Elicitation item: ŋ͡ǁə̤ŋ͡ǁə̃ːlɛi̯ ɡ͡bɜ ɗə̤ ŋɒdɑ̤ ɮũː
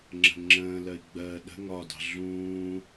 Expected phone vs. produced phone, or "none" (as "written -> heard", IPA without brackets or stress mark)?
ɛ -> ɜ